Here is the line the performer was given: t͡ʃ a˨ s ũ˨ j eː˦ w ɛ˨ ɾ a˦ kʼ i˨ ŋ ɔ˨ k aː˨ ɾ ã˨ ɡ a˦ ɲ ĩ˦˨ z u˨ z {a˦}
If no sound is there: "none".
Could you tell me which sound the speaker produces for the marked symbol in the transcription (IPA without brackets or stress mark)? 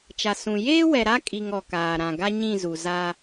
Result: aː˦